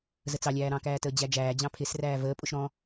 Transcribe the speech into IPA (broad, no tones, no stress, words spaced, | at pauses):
zət͡sɑ lʲæːɾɑ̃kæːtəː d͡ʑæd͡ʒæːd͡ʑɑ̃ pʰɪsræː vəːpʼʊʃ ɾɔ̃